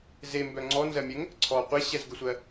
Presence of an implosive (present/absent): absent